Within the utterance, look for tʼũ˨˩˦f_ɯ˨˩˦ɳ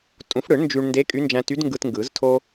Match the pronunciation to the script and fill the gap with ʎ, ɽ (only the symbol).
ɽ